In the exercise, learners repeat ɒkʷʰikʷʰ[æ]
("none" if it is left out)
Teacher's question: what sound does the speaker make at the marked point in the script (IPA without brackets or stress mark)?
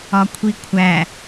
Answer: æ